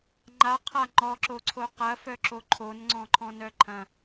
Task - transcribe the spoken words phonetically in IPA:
ŋ͡ǃaqʰa ŋ͡ǃɔǁoǀʰo qɐfœǁo ǃʰonŋ͡ǀɔ̃ǃʰɔ̃nœ ǃʰɐ̃

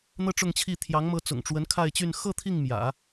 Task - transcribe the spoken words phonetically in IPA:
n̪ɤ˥ʈ͡ʂʊ˥˧ŋt͡ɕʰi˥˩ t̪ʰjɑ˧˥ŋmɤ˧˥t͡sʊ̰˨˩ŋʈ͡ʂwə˧˥n kʰa˥˧ɪ̯t͡ɕy˥˧n xɤ˥˧ t̪ʰi˥˩ŋmjä̰˨˩˦

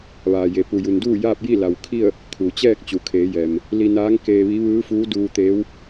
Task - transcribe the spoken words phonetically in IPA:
ʋaː˩je˩ pu˩ju˩n duː˥˨ jaː˥˨p̚ji˥˨la˩wkʰi˥˨ə̯ | kʰu˩t͡ɕɛː˥˨k̚ t͡ɕu˩kʰeː˩˧jɛː˩m | li˧naː˧˥ŋ keː˧ʋi˧˥ ʋɯː˧˥fuː˧˥duː˧t̪eː˧˥w

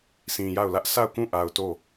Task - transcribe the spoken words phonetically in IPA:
sĩ˨ja˦˨ʊ̯lä˦ʔ sʰa˦˨ʊ̯kũ˦˨ʔa˨ʊ̯ to˦˨

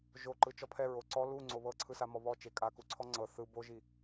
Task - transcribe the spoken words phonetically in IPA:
ʒoǃɯ t͡ʃɔpʰɛ ɹoǀɔ lu ŋ͡ǀoβɤǀʰɯsa mɔβɔ t͡ʃekʼaku ǀʰɔŋ͡ǀɤ θɯ boʒi

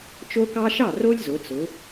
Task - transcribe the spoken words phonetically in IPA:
t͡ʃo˦kɑ˦ʃɑ˥˩ ro˦lʲzʊ˩˧t͡sʊ˩˧

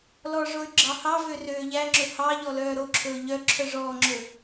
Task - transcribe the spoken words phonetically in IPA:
lɔʐoy̯ ɡ͡ǁɑhɑvø røːʎæŋ͡ǁɵ hɑ ʎɔlœːɾoǁʰɵː ʎœ ǁʰœʐɔːŋ͡ǁɵ

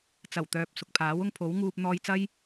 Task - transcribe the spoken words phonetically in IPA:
t͡sɐ˨˩wt̪œː˨p̚ sʊ˨k̚pʰaː˨˥wʊ˧ŋ pʰo˨˥wŋuː˧p̚ n̪ɔː˧jt͡sɐ˥j

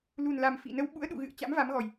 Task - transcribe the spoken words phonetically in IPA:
lu˨˩nla˨˩m fḭ˧˨nə˧w ɓṵ˧˥ə̯ɗṵ˧˨ɣɨ̰˧˨ə̯ t͡ɕa̰˧˥mva˨˦mɣɔ˨˩j

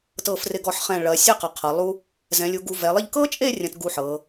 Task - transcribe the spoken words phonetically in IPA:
tɤ˧˩frɪ˧˩ɡɔ˧˩ħχɛ̃˧˩ ɭɐ˩˧ sʲɐ˥˧qɐ˩˧ qʰɤ˩˧lˠu˥ | zɛ̃˩˧lʲu˩˧ ɡu˧ vɛ˩˧lˠɪ˥˧ʎ kɤ˥t͡ʃʼe˥˧ rʲɐ̃˧tɡu˧ ħɤ˩˧

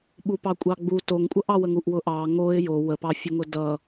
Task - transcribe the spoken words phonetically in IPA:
ɓupɑkʷʼɑɡ͡bu toŋkʷʼʌʔɑwəŋ uʔwʊʔɑ ŋoɪ̯ jo wəpɑ fʲʊŋʊdʌ

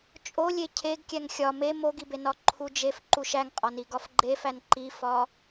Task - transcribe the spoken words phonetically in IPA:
t͡ʃʼolʲe cʰeɡkʲæŋ xʲɒ me moɡibe nɒǃʰud͡ʒef ǃuʃæŋqʼɒni ɡɒfɡ͡ǃefæn ǃifɒ

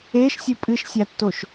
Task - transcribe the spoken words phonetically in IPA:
eʃ sʲɨpʼɨʃsʲatːoʃ

